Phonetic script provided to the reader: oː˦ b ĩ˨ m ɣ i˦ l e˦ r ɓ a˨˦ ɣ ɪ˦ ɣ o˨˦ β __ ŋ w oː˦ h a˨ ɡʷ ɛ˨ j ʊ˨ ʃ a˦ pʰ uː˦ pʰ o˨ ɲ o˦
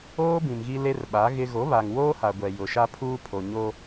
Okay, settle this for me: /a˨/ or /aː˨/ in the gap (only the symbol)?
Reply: a˨